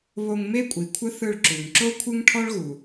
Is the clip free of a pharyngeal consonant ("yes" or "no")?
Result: yes